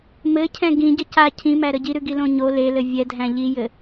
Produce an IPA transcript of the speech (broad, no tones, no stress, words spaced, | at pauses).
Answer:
mɘcʰɛ̃ ɡĩɟə ca cʰĩmæɾə ɟiɾʉɡilõ ɲo lelɘ vʲɛdʱæ̃ ʎijɘ